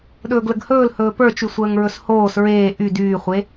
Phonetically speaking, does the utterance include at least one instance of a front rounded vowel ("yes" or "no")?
yes